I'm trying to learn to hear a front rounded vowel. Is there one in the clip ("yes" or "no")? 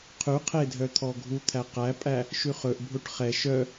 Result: yes